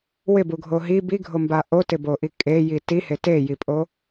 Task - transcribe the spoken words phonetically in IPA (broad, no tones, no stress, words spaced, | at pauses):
wɪbuɡʱo ɦi biɡʱomba ʔotɪboʔi kʼeji tihe tejipʼo